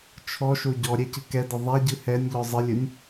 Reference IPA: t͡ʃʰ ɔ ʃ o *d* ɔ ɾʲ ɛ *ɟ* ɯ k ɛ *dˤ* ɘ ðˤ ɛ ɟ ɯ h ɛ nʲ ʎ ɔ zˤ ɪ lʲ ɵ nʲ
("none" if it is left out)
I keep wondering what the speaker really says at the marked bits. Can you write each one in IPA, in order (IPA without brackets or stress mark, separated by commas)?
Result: ɟ, c, d